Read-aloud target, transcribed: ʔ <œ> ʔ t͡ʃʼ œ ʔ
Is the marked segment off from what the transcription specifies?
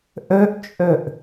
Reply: no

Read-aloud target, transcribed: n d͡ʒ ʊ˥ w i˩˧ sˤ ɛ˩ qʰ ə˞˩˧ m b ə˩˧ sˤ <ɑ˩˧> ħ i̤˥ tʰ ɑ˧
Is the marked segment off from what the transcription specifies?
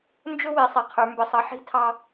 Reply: yes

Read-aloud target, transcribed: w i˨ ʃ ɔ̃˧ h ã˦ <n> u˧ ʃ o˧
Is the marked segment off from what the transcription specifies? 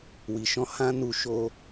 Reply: no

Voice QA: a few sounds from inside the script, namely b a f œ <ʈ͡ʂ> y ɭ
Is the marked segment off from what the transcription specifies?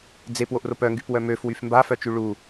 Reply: yes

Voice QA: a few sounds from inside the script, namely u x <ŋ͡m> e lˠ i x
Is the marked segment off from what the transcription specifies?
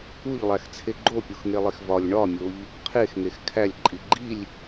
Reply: yes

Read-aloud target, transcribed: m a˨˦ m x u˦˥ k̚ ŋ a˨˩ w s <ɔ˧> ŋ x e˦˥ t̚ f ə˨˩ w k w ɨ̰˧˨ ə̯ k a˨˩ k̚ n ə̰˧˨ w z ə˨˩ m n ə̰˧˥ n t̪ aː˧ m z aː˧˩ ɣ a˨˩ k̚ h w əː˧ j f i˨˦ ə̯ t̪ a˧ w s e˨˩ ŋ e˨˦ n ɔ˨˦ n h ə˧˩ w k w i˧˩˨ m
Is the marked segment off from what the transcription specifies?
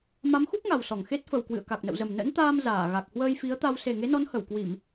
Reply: yes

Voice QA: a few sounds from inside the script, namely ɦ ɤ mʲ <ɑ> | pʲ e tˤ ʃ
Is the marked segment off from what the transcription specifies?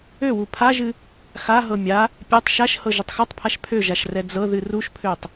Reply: yes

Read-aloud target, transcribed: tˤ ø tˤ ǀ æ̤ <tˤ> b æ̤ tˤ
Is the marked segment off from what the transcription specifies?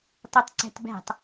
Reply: yes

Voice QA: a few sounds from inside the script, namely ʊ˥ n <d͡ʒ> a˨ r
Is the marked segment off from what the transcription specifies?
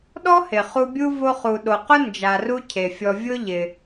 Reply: no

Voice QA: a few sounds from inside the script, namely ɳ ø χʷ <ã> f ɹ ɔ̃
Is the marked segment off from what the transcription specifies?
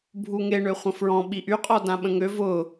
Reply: yes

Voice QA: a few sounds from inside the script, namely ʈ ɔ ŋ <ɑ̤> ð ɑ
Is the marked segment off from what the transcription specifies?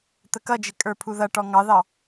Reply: yes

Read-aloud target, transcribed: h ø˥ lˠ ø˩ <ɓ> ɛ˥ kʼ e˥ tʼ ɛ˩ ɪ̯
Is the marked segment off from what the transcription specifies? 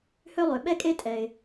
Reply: no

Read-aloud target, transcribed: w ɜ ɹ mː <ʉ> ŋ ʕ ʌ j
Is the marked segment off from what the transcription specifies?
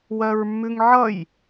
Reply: no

